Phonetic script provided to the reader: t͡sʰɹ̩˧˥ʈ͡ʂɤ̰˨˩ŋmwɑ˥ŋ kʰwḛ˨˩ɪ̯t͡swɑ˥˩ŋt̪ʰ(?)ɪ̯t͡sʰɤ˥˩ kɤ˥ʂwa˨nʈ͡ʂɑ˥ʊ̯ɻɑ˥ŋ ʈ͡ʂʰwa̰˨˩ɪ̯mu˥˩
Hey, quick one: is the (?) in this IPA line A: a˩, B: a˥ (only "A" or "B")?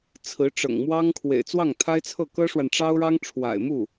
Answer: B